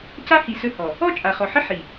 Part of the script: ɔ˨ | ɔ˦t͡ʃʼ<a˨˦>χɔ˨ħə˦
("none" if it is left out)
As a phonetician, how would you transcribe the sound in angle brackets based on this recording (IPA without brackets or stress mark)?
a˨